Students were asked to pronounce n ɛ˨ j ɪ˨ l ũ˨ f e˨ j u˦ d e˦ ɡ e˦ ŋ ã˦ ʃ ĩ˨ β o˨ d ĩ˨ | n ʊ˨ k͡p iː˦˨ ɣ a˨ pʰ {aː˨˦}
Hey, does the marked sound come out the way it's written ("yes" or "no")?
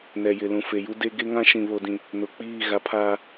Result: no